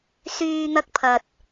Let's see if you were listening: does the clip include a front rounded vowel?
yes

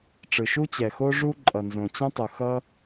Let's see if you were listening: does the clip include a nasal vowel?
yes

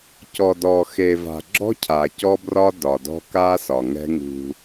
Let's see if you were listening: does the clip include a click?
yes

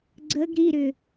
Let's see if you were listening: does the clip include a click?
yes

